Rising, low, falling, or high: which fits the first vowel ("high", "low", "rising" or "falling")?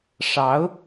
rising